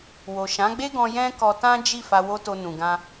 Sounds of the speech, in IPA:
w o˨ ʃ ã˨˦ ɡ͡b e˦ ɡ ɔ̃˧ j ɛ̃˦ k ɔ˧ t ã˦ d͡ʒ i˦˨ f a˧ w o˦ t o˧ n ũ˨ ɡ ã˧

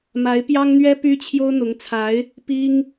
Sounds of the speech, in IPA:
m a˧˥ ɪ̯ p j ɑ˥ ŋ n̪ ɥ ɛ˥ p y˥ t͡ɕʰ j o˥ ʊ̯ n̪ ʊ˧˥ ŋ t͡sʰ a˧˥ ɪ̯ | p i˥ ŋ

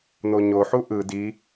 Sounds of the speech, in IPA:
n̪ o ɲ o ħ u ʔ ɯ d i

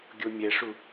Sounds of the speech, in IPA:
ɡʲ o mʲ ɛ ʂ u

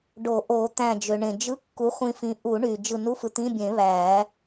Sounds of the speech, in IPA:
ɖ o˨˩˦ ʔ o˨˩˦ t̪ æ̃˧˩ d͡ʒ ø˩ ɳ ẽ˩ d͡ʒ ɯ˧˥˧ kː u˨˥ χʷ ĩ˧ f ĩ˨˥ ʔ u˨˩˦ ɳ y˩ d͡ʒ ɯ˧˩ n u˧˥˧ f ɯ˧ t̪ ĩ˧˥˧ bʲ ẽ˨˩˦ β æː˨˩˦

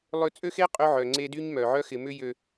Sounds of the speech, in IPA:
lˠ ʏ˦ t͡sʼ ø˦ x e˦ qʼ ø˦ ʕ œ˨ ŋ͡ǀ e˦ d y˦ ɲ m œ˨ ʕ œ˦ x ɪ˨ m ʏ˦ j ø˨

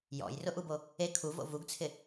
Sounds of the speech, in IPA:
j ɔ̰ j r ʊ ʔ u b o | e kʰ u v o̰ v u ɡ t͡sʰ ɪ

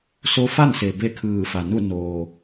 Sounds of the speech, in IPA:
s o˧˥ f a˥˨ n s e˩ b e˥˨ kʰ ɯː˧˩ f a˩ n u˥˨ n oː˩

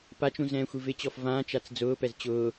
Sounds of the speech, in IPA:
p a t͡ʃ ũ z ɛ̃ː xʷ i v ɪ t͡ɕ ɔ f v ãː t͡ʃ a t͡s d͡z ʊː p ɛ z t͡ɕ ʊː

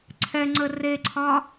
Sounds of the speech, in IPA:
ǀʰ ɛ ŋ͡ǀ ə r e ǀʰ ɒ

